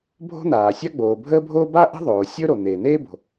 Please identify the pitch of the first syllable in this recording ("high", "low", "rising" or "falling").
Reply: high